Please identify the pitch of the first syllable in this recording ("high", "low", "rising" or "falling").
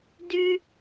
high